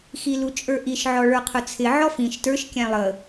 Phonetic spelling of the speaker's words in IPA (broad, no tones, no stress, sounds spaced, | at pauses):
x i l u t͡ʃʼ ə˞ ʔ i ʃ ʕ ɔ ɭ ə˞ qʰ ʊ t͡sʰ ɪ ʕ ɔ f ĩ ʃ t ə˞ ʃ kʲ æ̃ lˠ ə